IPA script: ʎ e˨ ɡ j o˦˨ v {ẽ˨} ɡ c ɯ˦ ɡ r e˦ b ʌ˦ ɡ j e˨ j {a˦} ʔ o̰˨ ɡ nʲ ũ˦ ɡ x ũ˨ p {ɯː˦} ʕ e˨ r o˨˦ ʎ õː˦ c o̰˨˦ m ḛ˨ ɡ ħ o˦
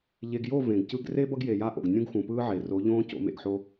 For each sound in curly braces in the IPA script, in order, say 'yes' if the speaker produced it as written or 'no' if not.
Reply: yes, yes, yes

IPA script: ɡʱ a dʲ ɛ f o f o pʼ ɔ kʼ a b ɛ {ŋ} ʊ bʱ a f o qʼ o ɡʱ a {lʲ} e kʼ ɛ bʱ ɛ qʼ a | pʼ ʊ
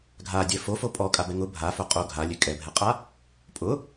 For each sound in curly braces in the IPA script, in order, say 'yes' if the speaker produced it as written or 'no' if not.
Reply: yes, yes

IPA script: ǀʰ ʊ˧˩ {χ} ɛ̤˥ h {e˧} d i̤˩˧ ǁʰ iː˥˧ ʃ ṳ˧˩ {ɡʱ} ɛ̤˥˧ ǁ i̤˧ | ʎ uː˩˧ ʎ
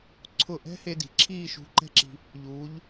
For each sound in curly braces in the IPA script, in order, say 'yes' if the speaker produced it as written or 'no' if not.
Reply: no, yes, no

